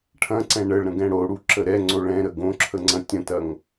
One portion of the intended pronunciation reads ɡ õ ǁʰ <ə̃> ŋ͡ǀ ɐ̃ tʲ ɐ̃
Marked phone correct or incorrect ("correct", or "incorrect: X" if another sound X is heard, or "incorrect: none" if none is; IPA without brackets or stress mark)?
incorrect: ə